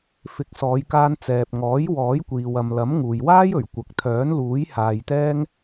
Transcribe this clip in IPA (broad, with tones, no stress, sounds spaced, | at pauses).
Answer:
f ɪ˨˥ k̚ s ɔː˨˧ j k aː˧ n t͡s ɛː˨ p̚ ŋ ɔː˨˥ j w ɔː˨˥ j kʷ iː˨ w ɐ˨ m l ɐ˨˥ m ŋ uː˨ j w aː˥ j ɵ˨˩ ɥ kʷ ɐ˨ k̚ t̪ʰ œː˨˥ n l uː˨˥ j h aː˧ j t̪ ɛː˥ ŋ